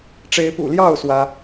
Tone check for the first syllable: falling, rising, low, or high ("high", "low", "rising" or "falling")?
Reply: rising